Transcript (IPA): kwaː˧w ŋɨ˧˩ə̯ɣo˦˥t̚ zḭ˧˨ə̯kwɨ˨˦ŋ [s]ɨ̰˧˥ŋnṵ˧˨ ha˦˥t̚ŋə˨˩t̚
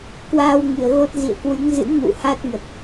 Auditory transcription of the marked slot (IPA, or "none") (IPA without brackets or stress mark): z